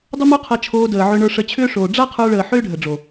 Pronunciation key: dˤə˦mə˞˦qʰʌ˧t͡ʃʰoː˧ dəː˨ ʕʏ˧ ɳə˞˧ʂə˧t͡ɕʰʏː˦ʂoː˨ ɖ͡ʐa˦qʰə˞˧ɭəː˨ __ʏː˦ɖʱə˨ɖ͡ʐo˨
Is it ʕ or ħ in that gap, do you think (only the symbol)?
ħ